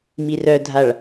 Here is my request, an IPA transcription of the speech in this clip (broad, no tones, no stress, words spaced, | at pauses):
mirœdʱaɭ